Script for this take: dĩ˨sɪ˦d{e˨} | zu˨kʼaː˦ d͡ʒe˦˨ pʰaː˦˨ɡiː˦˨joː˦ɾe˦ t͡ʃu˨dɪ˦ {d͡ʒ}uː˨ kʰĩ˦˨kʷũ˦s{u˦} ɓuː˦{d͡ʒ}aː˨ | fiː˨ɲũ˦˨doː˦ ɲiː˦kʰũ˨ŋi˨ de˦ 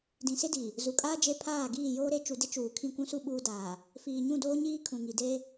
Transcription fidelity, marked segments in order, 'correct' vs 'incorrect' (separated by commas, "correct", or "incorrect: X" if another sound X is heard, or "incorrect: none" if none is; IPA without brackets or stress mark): incorrect: i˨, incorrect: t͡ʃ, correct, incorrect: d